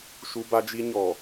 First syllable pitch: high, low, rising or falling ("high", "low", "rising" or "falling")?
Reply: high